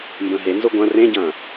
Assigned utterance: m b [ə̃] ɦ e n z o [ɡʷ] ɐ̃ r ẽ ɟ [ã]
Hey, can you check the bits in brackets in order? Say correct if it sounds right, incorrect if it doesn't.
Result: correct, correct, incorrect

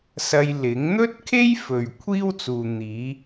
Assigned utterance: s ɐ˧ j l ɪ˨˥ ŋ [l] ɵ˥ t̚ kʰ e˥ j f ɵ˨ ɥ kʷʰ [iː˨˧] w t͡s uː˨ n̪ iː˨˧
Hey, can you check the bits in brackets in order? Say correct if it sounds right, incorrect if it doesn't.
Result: incorrect, incorrect

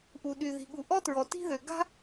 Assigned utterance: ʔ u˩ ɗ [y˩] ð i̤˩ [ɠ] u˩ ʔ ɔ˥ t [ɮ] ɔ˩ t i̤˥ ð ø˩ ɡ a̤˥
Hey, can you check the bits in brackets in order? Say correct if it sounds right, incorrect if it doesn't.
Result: correct, correct, incorrect

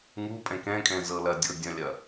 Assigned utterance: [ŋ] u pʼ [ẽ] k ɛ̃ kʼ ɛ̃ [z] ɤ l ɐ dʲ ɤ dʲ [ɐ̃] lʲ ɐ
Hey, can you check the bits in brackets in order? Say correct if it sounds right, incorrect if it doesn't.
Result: correct, incorrect, correct, correct

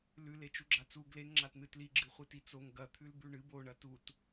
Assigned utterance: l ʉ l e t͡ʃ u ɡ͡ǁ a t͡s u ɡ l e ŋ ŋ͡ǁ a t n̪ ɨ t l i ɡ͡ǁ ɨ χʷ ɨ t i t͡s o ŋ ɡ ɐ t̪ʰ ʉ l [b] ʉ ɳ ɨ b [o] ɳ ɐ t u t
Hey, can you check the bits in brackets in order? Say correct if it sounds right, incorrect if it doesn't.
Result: correct, correct

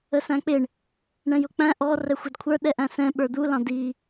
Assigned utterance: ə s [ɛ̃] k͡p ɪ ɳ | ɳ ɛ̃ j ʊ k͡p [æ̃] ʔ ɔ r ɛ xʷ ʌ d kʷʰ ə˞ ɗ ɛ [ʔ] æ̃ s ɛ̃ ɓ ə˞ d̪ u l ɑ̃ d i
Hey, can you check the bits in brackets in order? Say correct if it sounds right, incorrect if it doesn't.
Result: incorrect, correct, correct

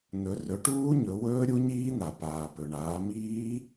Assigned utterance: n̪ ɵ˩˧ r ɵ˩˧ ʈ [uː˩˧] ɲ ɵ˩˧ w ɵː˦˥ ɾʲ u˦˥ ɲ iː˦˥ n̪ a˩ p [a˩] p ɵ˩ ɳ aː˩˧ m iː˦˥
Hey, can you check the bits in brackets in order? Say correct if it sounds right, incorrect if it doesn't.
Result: incorrect, incorrect

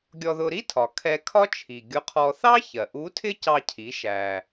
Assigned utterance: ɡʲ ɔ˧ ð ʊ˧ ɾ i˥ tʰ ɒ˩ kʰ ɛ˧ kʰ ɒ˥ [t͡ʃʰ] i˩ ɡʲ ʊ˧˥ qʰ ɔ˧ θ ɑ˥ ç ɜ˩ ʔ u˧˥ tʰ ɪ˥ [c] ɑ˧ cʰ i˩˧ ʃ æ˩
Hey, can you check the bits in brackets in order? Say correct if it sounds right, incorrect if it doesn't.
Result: correct, correct

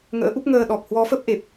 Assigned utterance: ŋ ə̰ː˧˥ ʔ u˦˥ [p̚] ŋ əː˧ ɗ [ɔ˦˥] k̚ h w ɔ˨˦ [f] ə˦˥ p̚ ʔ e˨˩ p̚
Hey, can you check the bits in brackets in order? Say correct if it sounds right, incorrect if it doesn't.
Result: correct, incorrect, correct

